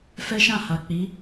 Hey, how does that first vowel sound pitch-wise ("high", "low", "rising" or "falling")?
high